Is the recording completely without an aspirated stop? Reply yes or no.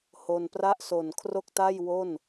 no